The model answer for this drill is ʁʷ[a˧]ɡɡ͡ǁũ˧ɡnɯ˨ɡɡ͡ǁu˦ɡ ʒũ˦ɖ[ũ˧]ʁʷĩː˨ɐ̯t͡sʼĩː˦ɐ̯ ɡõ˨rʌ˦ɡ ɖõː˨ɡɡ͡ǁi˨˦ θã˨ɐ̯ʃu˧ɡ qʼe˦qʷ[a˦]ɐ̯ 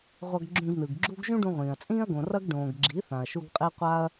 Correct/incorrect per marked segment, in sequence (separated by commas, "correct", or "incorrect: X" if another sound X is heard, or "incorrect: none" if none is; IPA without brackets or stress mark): incorrect: ʌ˧, correct, correct